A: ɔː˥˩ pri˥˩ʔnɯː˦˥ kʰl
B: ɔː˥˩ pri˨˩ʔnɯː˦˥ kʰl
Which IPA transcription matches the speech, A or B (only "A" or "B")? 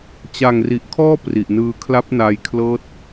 B